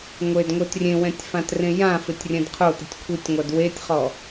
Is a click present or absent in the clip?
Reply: absent